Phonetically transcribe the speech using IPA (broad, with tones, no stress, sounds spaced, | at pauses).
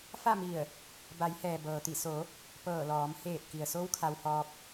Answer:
f a˥˨ m i˧˩ ə̯ | b a˩˧ j h ɛː˩ b ɤː˩ t̪ i˧˩ s o˩˧ | p ɤː˧˩ l ɔː˩˧ m h eː˧˩ t̚ k i˩ ə̯ s o˧˥ w kʰ a˧ w h ɔː˧ p̚